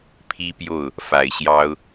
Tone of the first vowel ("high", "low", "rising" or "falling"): high